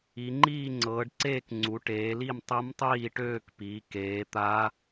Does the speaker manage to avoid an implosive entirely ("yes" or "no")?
yes